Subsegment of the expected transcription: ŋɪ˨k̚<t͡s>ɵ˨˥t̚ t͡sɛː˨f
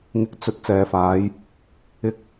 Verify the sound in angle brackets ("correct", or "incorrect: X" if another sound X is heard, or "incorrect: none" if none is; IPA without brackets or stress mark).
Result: correct